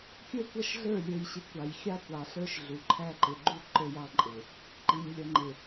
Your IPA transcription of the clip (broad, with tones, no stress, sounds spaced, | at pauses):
kʲ ə˞˦ kʷ ʌ˦ ʃ ɮ ə˞˦˨ lʲ ə˞˨ j ɕ ɪ˨ kʷ ɑ˨ j xʲ ɑ˦ kʷ ɑ˨ ɬ ə˞˦ ʃ ɮ u˨ ǃʰ æ˦ ǃ ɪ˨ ɡ͡ǃ u˦ ǃ ə˞˦ j ɑ˦ ǃʼ ɪ˨ | ǃ i˨ ɲ lʲ ʌ˨ ŋ͡ǃ ɪ˨